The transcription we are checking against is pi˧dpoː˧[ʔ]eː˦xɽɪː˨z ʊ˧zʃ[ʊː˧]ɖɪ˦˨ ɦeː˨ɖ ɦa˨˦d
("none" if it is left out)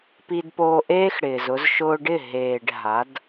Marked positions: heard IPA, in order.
ʔ, ʊː˧

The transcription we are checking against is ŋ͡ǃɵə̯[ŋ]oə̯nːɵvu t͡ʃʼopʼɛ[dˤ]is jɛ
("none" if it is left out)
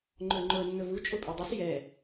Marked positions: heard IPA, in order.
ŋ͡ǃ, dˤ

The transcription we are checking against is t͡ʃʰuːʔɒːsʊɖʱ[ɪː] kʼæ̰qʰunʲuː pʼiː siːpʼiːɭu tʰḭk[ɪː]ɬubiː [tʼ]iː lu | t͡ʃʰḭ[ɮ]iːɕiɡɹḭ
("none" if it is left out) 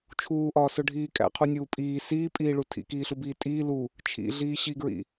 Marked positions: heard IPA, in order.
iː, iː, tʼ, ɮ

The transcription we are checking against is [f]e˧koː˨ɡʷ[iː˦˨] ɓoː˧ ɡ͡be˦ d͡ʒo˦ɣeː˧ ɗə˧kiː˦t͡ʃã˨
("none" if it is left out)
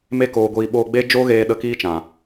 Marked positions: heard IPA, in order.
m, iː˨

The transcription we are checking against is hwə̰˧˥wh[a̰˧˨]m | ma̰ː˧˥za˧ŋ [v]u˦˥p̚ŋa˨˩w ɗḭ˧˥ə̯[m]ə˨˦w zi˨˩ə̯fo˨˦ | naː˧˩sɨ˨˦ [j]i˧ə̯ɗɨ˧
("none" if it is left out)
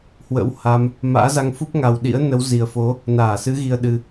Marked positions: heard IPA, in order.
a˧, f, n, ɣ

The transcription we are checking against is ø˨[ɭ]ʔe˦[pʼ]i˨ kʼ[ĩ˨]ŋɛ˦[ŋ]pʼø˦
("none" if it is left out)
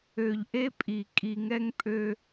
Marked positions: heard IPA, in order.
ʎ, pʼ, i˨, ŋ

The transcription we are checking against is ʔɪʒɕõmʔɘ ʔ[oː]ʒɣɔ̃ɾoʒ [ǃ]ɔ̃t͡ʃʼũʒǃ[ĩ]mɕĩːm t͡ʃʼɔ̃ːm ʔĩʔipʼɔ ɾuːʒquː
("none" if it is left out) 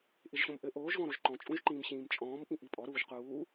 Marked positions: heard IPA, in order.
oː, ǃ, ĩː

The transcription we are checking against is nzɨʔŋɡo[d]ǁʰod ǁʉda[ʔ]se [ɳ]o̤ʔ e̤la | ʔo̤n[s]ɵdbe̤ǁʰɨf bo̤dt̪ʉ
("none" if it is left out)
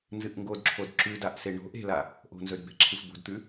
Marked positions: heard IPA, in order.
d, ʔ, ɳ, z

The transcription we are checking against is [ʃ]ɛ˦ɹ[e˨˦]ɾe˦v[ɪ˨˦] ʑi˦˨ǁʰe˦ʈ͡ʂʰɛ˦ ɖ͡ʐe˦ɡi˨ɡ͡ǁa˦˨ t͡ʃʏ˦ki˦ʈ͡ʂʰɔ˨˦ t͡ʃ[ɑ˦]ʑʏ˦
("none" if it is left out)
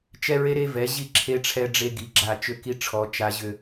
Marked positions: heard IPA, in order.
t͡ʃ, e˦, ɛ˨˦, a˦

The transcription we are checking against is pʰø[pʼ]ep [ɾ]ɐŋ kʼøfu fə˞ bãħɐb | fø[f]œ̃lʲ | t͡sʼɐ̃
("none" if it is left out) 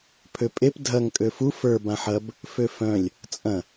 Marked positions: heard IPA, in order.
pʼ, dʱ, f

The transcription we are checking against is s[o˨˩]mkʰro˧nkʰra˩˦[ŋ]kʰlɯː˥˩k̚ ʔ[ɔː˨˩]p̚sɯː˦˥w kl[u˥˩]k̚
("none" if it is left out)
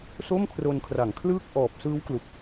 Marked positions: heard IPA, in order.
o˥˩, ŋ, ɔː˨˩, u˨˩

